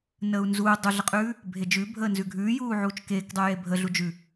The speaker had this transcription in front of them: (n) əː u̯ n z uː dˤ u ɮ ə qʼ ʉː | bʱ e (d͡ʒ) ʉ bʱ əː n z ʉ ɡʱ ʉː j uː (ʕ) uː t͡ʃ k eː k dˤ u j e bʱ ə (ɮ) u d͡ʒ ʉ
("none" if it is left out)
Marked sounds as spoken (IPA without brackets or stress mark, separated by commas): n, d͡ʒ, ʕ, ɮ